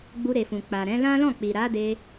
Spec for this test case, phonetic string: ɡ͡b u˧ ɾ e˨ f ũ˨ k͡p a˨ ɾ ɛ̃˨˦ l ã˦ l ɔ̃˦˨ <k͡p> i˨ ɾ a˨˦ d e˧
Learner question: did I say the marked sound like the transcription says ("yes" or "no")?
yes